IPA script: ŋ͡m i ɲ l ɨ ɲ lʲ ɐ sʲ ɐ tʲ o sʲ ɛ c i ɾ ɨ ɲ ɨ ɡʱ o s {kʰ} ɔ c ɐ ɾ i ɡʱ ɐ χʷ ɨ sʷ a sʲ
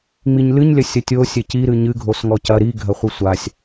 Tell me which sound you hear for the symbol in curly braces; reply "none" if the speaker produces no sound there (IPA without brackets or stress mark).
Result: ŋ